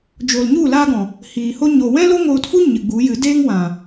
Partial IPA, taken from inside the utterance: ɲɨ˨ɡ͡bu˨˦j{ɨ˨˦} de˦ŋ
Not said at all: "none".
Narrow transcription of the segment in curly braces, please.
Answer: ɨ˨˦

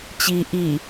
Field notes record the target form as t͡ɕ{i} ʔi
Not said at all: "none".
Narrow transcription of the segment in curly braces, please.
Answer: i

